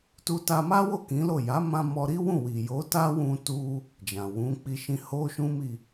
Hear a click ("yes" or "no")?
no